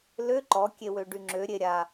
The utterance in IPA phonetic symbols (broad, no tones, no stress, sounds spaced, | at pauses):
l ø ǃ ɔ kʲ e w ø ɖ y ŋ͡ǁ ø ɾʲ e ɾʲ a